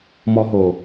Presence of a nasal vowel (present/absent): absent